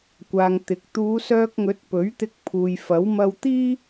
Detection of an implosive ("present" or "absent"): absent